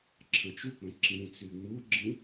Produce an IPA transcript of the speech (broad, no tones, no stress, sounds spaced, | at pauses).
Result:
ǁʰ ə̃ t͡ʃ u k͡p ə̃ ǁ ĩ t͡s y ŋ͡m u ɡ͡ǁ ĩ